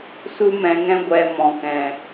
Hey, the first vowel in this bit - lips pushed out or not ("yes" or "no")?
yes